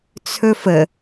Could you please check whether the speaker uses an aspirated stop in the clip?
yes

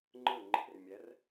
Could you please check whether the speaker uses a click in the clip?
yes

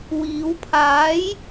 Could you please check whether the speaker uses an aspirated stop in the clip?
yes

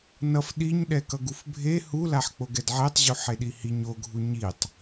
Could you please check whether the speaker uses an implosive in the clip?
yes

